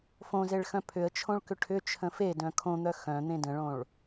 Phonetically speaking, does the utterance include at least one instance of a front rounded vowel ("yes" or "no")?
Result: yes